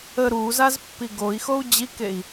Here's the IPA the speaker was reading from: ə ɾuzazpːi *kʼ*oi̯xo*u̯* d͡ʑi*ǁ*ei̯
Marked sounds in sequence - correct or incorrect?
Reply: incorrect, correct, incorrect

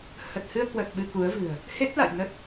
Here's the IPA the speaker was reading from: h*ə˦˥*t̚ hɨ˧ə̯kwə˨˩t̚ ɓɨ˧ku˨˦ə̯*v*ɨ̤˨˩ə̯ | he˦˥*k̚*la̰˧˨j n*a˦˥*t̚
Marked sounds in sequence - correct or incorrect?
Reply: incorrect, correct, incorrect, incorrect

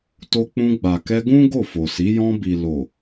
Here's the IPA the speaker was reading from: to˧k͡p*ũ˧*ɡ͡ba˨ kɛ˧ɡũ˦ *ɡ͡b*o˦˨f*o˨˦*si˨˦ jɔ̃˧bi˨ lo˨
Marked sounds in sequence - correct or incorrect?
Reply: correct, incorrect, incorrect

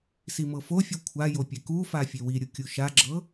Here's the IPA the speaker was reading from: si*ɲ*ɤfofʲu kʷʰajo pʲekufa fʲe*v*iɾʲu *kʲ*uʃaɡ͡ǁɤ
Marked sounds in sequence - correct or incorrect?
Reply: incorrect, incorrect, correct

